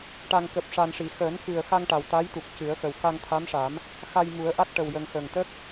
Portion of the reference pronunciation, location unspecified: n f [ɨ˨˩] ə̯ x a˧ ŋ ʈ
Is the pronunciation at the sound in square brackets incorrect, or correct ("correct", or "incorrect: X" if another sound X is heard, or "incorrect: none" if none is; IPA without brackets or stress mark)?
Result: correct